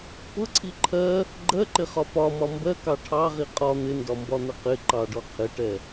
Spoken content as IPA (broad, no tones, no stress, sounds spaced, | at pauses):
p ʊ ǀʰ i ǃʰ ɜ | ɡ͡ǃ ɜ ǃ ɪ χ ɒ p ɒ m ɒ m b ɜ k ɑ ʈʰ ɑ ʁ i qʼ ɒ n̪ ɪ n d ɒ m b ɒ n̪ ə q ɪ ǃ ɑ ɖ ɔ qʰ ɪ ʈ ɛ